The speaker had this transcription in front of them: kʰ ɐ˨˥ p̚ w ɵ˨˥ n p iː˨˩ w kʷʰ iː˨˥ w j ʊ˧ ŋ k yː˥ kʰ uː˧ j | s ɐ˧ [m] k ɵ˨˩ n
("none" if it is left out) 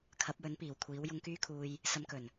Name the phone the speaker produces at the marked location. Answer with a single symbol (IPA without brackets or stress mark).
m